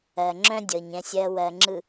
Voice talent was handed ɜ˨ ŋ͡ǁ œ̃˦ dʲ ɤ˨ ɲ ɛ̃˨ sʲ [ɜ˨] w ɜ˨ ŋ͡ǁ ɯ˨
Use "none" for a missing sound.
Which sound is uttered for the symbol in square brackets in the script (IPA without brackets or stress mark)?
ɜ˨